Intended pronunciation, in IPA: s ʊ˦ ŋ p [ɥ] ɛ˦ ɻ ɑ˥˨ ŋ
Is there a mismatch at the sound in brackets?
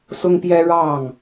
yes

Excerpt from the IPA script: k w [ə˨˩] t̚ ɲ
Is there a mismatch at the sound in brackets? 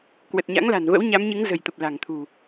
no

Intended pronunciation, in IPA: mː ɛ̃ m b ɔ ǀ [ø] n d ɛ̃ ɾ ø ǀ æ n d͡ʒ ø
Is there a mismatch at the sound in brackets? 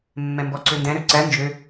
no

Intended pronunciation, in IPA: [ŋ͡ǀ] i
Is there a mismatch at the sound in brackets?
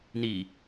yes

